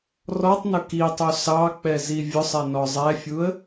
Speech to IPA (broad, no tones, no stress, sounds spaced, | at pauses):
r ɔ tˤ n ʊ k i tˤ u s ɑ k͡p ɛ z i vʲ ʊ sˤ ɛ n ɔ zˤ ɛ fʲ u ə̯